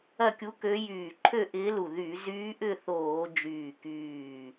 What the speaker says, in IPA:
ɐ˥˧ kʲ u˧˥ k ø˧˥ j yː˧˩ ǃʰ ø˥˧ ʔ ɪː˧˥ l u˧˩ ð y˧˩˧ z yː˧˥ ʔ ʏ˥˧ θ oː˧˩˧ d͡ʒ yː˧˩ k yː˧˩

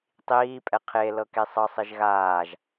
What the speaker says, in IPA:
tˤ iː pʼ ɛ qʰ e l ɤ k e sˤ ɤ sˤ i ʒ ɣ aː ʒ

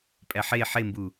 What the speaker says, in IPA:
pʼ æ ħ e ħ e m b u

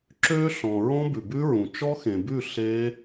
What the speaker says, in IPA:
ǁ ø˦˥ ɬ ɔ̃˨ ɹ ɔ̃˦˥ b ʉ˨ b ʉ˦˥ ɹ ũ˨ t͡ʃ ɔ˦˥ x ẽ˨ b ʉ˥˨ ɬ e˦˥

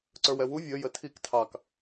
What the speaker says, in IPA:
ǀ ə˞ w ɛ w u vʲ ə j ə tʰ i k tʰ ɑ k

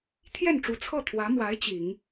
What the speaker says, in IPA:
t̪ʰ j ɛ˥˩ n ʈ͡ʂ u˧˥ t͡sʰ ɤ˥˩ t̪ʰ w ä˧˥ m w a˧˥ ɪ̯ t͡ɕ i˨˩˦ ŋ

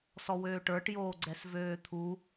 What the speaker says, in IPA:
s ɔ w øː ʈ ə˞ ʈ j oː ɡ͡ǀ ɛ s v øː t̪ʰ u

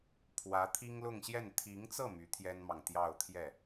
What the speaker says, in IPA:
pʰ w ä˧˥ t̪ʰ i˥ ŋ l ʊ˥˧ ŋ ɕ j ɛ˥˩ n t̪ʰ i˧˥ ŋ t͡s ɤ˥˩ m y˧˥ t̪ʰ j ɛ˥ n m ɑ˨ ŋ t̪ j ɑ˥˧ ʊ̯ t̪ʰ j ɛ˥˩

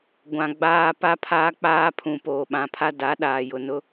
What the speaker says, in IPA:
ɡʷ ã˨ ɡ͡b aː˦ p a˦ pʰ aː˦ k͡p aː˦ pʰ ũ˨ p oː˨ ɓ ã˨ pʰ a˦ d a˨˦ ɗ aː˨ j ʊ˨ n ʊ˦

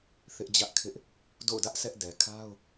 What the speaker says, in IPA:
θ ɪ˦ ʔ d͡ʑ ä˦ ʔ kʰ ɪ˦ ʔ | d o̰˦˨ ʊ̯ d ä˦ ʔ s ɛ˦ ʔ d ɛ˨ kʰ a˦ ʊ̯

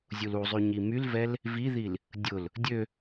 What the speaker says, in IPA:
zʲ u l u zˤ y ɲ i m y l v ɛ l | v i ð i l | dʲ ʊ l | dʲ ø

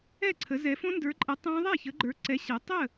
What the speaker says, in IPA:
ɛ˥˨ ǀʰ ə˨˦ z ɛ˨˦ f õ˦˥ n d ə˞˨˦ ǃʼ ɛ˨˦ tˤ ɛ̃˦˥ ðˤ ɛ˥˨ ç ə˨˦ ɡ͡ǃ ə˞˨˦ ǀ ɛ˨˦ ɕ ɛ˨˦ tˤ ə˥˨

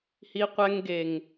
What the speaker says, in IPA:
h i˧ qʷ ɛ˧ ŋ ɡ e˨ ŋ

